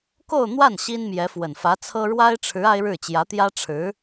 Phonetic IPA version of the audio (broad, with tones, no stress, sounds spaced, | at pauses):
k o˥˧ ʊ̯ n̪ w a˥˩ n ɕ i˥ n m j ɛ˧˥ f w ə˨˩ n f ä˧˥ t͡sʰ ɤ˥ ɻ w a˥ ɪ̯ ʈ͡ʂʰ ɻ̩˧˥ a˥ ɪ̯ ɻ ɻ̩˥˩ t͡ɕ j ä˧˥ t̪ j ä˥ ʈ͡ʂʰ ɻ̩˧˥